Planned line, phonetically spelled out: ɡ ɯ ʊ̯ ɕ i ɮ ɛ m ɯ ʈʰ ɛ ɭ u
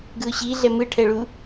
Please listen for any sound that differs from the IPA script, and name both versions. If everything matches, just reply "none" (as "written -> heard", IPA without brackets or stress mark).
none